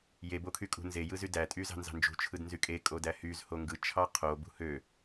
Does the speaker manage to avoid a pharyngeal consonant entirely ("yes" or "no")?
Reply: yes